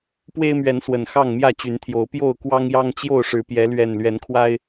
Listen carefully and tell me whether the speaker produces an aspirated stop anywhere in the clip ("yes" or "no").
yes